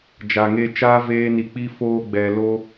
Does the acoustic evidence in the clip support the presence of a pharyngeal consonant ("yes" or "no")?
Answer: no